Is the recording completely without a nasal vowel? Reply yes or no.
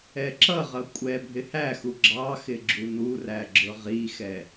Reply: yes